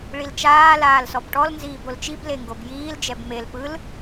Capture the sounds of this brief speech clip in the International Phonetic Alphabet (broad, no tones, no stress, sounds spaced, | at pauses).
ɭ i l t͡ʃ aː l aː l s ɔ b ʈ ɔ l n z iː b o l t͡ʃ i b l e ŋ ɡ o b j iː l d͡ʒ ɛ b m e l p ɯ l